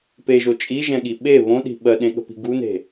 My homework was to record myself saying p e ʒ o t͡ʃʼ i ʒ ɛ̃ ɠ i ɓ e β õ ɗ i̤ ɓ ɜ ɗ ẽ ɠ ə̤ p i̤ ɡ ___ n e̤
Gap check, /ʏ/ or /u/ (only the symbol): u